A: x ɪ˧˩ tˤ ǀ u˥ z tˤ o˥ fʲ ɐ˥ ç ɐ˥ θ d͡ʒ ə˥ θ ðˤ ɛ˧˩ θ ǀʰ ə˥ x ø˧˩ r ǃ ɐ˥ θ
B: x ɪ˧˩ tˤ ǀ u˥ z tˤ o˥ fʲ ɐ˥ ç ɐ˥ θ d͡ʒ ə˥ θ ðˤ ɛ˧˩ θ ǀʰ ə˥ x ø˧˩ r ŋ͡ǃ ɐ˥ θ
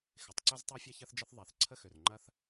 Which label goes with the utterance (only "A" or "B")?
B